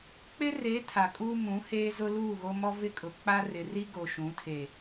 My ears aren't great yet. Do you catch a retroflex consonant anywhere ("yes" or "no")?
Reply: no